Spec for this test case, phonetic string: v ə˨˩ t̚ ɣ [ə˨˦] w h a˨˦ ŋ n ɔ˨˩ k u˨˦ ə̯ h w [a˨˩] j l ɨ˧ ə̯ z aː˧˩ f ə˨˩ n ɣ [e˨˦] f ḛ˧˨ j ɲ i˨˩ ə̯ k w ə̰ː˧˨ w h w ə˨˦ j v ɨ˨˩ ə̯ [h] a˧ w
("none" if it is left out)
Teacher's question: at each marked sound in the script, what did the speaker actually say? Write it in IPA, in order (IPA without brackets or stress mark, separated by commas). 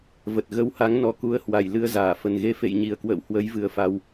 ə˨˦, a˧˩, e˨˦, f